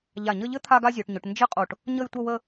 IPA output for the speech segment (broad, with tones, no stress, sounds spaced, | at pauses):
ʎ a˧˩ ɲ ə˥˧ ʎ ɘ˥ t̪ʰ a˥ ɡ a˥ zʲ o˩˧ ʈ ɲ ʊ˩˧ ʈ n d͡ʒ ɘ˥ qʼ o˧˩ ʈ | ɲ ə˥˧ j tʷ ə˥˧ w ə˥˧